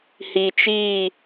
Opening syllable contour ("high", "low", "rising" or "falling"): low